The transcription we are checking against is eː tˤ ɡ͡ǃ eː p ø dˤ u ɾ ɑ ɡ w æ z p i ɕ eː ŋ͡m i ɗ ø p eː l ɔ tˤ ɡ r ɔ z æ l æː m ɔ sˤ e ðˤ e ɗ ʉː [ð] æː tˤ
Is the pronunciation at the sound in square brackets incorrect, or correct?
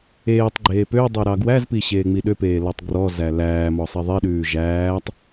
incorrect